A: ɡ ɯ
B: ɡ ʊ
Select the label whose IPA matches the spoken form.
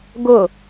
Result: B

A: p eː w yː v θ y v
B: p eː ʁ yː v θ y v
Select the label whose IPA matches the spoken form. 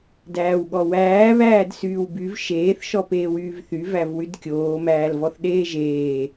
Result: A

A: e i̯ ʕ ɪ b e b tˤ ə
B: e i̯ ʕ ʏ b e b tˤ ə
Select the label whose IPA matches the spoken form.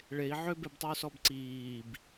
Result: B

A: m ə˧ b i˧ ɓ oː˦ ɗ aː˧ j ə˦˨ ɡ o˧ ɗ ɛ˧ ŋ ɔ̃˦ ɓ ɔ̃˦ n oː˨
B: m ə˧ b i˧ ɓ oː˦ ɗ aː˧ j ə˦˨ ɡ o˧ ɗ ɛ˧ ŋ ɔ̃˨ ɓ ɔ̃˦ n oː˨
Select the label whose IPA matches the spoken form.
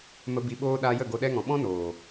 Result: B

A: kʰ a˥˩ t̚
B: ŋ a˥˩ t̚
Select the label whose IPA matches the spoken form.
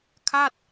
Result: A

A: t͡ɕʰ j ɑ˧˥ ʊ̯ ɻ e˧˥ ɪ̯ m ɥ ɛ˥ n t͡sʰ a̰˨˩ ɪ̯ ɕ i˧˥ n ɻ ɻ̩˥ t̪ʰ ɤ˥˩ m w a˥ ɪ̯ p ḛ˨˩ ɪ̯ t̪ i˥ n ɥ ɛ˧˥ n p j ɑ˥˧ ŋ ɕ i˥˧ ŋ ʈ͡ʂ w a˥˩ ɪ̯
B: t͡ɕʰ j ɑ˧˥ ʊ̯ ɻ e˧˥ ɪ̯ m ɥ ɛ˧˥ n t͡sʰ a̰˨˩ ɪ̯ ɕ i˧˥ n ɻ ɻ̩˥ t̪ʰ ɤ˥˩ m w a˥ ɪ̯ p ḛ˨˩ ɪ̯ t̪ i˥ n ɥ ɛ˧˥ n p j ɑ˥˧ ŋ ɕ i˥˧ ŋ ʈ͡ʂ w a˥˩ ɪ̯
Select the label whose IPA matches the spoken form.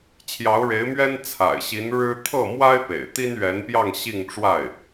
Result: A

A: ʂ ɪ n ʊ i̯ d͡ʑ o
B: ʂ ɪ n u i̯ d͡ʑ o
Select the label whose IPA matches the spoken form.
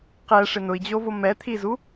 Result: A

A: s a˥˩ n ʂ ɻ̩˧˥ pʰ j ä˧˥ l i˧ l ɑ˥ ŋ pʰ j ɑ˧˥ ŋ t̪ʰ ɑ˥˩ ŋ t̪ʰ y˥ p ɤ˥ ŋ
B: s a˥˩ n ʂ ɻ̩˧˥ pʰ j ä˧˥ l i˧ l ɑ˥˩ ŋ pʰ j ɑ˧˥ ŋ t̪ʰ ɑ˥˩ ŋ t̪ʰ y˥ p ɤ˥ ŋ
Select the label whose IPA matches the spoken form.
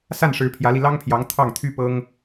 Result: A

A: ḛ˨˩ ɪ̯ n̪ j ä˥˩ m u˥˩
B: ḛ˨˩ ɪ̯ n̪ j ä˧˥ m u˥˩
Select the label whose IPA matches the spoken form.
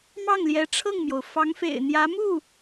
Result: B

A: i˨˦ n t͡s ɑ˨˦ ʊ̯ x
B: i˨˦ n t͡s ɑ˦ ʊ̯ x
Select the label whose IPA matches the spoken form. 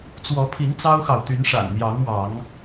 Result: B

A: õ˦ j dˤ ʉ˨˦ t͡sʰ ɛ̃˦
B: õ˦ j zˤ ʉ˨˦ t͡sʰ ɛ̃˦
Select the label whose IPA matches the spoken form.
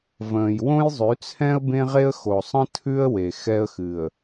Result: B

